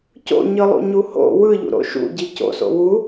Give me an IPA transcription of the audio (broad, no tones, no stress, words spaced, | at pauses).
co̰ɲɯ lˠṵɲuho̰ wɯʎṵ ɾo̰ʃṵ ɟico̰so̰ wu